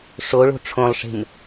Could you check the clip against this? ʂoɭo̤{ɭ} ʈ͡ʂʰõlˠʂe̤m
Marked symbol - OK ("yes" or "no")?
no